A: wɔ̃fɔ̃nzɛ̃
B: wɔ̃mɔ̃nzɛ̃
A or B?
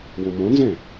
B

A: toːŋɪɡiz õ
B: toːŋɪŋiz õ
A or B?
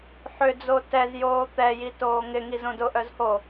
B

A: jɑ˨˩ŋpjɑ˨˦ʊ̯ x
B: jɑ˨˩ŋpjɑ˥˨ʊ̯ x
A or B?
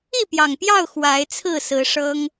B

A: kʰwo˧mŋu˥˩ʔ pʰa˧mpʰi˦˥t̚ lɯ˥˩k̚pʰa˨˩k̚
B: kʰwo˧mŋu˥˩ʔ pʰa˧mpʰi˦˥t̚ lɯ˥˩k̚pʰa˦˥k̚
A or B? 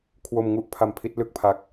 B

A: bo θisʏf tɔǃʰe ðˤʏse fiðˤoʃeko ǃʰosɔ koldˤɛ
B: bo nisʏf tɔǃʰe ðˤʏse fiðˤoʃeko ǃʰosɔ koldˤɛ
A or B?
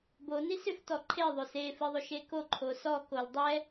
B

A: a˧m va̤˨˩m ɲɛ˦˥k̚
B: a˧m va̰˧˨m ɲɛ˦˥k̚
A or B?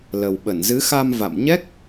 B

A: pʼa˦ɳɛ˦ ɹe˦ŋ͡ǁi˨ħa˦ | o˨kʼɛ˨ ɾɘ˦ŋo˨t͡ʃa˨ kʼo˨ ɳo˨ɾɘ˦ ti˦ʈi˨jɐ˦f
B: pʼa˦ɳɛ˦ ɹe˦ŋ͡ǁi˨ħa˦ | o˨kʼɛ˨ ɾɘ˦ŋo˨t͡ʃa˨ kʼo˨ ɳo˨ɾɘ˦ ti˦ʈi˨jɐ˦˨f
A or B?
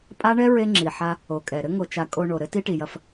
A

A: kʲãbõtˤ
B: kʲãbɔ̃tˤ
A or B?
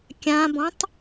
B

